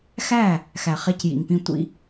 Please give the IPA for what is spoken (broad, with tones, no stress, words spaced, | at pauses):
xæ˦˨ | xæ˨χe˧cjḭ˨ŋpĩ˧ tʷḭ˧